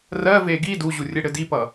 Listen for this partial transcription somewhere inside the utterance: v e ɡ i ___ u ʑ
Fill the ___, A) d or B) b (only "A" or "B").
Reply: A